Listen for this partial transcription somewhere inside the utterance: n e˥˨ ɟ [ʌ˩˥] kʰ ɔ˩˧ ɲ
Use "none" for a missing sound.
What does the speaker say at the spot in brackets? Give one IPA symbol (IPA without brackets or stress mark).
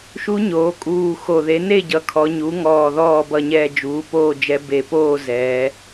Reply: ʌ˩˥